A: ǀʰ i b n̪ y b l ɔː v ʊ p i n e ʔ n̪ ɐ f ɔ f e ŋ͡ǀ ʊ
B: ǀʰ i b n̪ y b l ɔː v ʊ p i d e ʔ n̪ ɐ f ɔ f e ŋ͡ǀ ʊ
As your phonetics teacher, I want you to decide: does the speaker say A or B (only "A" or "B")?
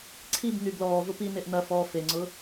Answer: A